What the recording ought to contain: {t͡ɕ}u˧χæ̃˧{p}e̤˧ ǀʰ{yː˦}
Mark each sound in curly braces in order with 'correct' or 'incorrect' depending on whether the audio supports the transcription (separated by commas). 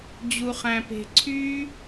incorrect, correct, correct